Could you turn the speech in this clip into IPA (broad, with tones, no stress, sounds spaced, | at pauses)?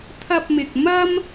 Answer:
t̪ʰ ɐ˧ p̚ m ɪ˨ k̚ m ɐ˥ m